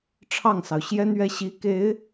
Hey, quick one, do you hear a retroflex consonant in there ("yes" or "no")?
yes